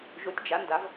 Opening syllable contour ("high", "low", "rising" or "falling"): rising